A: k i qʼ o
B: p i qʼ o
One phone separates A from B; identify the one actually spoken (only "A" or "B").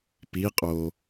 B